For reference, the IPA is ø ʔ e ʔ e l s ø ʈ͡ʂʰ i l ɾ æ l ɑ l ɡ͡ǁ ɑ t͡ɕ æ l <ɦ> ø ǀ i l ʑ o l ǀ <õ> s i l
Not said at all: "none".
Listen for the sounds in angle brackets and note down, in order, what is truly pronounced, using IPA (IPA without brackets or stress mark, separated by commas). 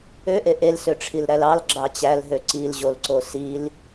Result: ɦ, o